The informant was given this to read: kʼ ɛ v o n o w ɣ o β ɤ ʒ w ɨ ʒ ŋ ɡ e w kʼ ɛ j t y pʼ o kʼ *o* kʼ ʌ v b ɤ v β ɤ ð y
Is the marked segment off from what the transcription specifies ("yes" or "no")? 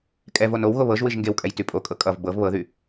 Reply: yes